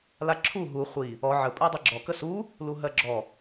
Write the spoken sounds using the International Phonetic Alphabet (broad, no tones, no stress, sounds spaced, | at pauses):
l a ǁʰ u ɦ u χʷ i | ɔ ʕ ə pʼ ɜ dˤ i ɡ͡ǁ ɔ k ə s u | l u ɦ ɜ ɡ͡ǁ ɔ